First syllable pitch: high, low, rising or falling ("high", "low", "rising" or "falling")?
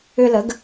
high